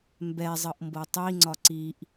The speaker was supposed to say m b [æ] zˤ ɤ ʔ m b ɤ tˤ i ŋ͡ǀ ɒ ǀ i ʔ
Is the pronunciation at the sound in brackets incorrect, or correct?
incorrect